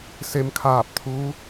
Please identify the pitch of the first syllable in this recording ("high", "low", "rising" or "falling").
rising